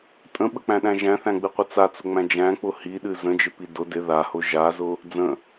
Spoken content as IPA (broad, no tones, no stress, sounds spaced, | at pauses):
tʼ ə̃ ɓ ə k͡p æ̃ ɗ æ̃ ʒ æ̃ θ æ̃ ɡ͡b ɨ qʷ ɪ t͡s a t͡s ʊ ŋ͡m æ̃ d͡ʒ æ̃ k͡p ʊ h i ɗ ɨ z ə̃ d͡ʒ ɪ p i d ʊ d ɪ ð a h ʊ ʒ a z ʊ | d͡z ə̃